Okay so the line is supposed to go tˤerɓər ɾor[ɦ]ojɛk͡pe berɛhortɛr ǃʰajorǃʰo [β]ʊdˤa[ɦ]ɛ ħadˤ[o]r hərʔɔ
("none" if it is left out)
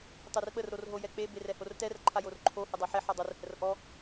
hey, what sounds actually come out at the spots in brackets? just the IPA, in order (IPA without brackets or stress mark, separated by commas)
ɦ, h, ħ, o